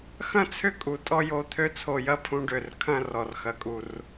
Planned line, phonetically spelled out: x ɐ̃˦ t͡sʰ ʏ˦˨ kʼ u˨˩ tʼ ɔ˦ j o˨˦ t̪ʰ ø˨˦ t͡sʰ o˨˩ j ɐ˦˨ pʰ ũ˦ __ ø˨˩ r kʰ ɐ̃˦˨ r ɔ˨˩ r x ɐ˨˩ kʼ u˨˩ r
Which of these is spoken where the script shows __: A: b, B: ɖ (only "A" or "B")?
B